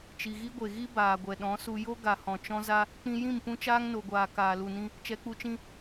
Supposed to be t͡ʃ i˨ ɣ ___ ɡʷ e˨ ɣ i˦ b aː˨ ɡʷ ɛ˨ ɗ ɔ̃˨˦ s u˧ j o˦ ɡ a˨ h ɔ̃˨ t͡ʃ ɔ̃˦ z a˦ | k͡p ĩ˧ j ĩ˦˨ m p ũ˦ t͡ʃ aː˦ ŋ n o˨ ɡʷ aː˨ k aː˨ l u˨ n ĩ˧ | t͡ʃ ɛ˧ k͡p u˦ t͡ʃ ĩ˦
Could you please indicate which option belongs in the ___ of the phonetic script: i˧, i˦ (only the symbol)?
i˦